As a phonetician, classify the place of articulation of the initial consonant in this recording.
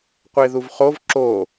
uvular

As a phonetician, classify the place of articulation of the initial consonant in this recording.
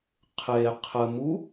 uvular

